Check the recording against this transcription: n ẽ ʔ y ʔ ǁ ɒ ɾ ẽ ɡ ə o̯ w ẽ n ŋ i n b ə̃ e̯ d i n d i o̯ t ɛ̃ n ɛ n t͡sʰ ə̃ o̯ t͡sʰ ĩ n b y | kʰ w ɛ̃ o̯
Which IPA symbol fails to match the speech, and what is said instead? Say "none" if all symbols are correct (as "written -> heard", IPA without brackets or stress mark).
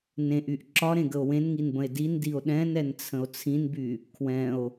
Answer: t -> ɗ